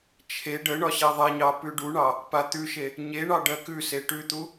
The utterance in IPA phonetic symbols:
t͡ʃʰ e ɖ ə ɳ ɒ ɕ e ðˤ e ɲ ɑ p ʉ ɖ u ɳ ɑ | p a t̪ ʉ ʃ e | ɲ e ɳ ɑ ɖ ɜ k ʉ s e ʈ ʉ t̪ u

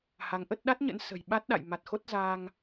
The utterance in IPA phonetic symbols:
h a˨˦ ŋ ʔ ə˦˥ t̚ ɗ a˦˥ t̚ ɲ ə̰˧˥ n s ə̤˨˩ j ɓ a˦˥ t̚ ɗ a̰˧˨ j m a˨˩ t̚ x o˦˥ t̚ z aː˧ ŋ

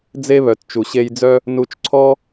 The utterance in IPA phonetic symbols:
d͡z e˧ β œ˨ t t͡ʃ u˨ ɕ e˧ j d͡z œ˦ | n u˧ t͡ʃ ǀʰ ɔ˦

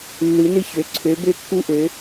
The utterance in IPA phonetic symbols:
lː ɨ˨˦ n ɨ˦ ç ø˨˦ ǀʰ ø˨˦ b ø˦ kː u˦ ʔ ø˨˦

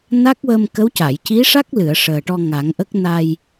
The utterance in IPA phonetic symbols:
n a˦˥ k̚ w ə˧ m k ə˧˥ w c a˨˩˨ j c i˧˥ ʂ a˦˥ k̚ l ɨ˨˩˨ ə̯ ʂ əː˨˩ ʈ ɔ˧ ŋ a˨˩˦ ŋ ʔ ə˦˥ k̚ n a˧ j

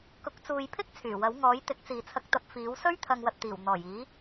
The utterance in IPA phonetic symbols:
k ʊ˨˥ k̚ t͡s uː˨ j pʰ ɪ˥ k̚ t͡sʰ yː˨˩ w ɐ˨˥ w ŋ ɔː˨˥ j t̪ ɪ˨˥ k̚ t͡s iː˨ t͡sʰ ɐ˧ k̚ t̪ ɐ˧ p̚ f iː˨˥ w s ɵ˥ ɥ t̪ʰ ɐ˨ ŋ w ɐ˨ t̚ t̪ iː˨˩ w n̪ ɔː˨˩ j iː˨˥

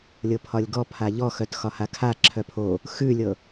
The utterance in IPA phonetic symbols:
lʲ ɤ pʰ ɒ lʲ ɡ ɔ pʰ a ʎ ɔ x œ t x ɒ h a kʰ a ǁʰ œ pʰ o | x ʉ lʲ ɤ

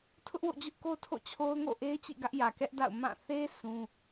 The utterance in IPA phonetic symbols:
tʰ ʊ˦ ʔ w o̰˦˨ d͡ʑ ʊ˦ ʔ k o˦ tʰ o̰˦˨ t͡ɕʰ o˦ ʊ̯ ŋ o̰˦˨ ʔ e˦ ɪ̯ t͡ɕ ḭ˦˨ ɡ ä˦ ʔ j ä˨ k ɛ˦ ʔ d a̰˦˨ ʊ̯ m ã˦˨ θ e˦ s ũ˦

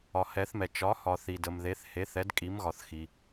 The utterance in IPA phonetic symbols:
ɒ˨ h ɛ˨˦ θ m ɛ˨ t͡ʃ ɒ˨˦ h ɒ˨ θ i˨ d ə˨ m ð e˨˦ θ h e˨˦ θ ɛ˨˦ d kʼ i˨˦ m ɣ ɒ˨ θ x i˨

